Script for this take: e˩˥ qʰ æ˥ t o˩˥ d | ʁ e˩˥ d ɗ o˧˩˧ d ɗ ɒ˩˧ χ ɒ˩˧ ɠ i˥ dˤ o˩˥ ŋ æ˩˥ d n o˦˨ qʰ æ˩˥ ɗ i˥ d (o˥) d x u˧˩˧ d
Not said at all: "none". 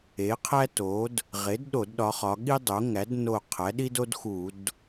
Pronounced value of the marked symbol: o˥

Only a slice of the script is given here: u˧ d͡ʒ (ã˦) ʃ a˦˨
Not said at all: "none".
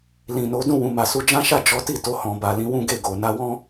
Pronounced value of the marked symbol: ã˦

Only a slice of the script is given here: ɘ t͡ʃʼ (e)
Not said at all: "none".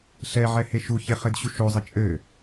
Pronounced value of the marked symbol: ɘ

